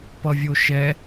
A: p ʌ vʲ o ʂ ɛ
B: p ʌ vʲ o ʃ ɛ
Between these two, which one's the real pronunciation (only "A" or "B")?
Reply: B